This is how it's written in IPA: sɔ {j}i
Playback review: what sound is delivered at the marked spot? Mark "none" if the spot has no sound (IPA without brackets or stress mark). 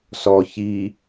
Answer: ç